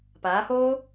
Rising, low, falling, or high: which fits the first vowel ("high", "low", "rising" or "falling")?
rising